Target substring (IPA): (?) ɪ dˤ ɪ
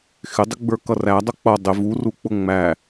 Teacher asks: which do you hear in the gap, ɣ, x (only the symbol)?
x